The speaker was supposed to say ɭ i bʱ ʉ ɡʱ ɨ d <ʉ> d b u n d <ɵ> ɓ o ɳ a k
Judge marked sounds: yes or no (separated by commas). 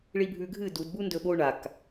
no, yes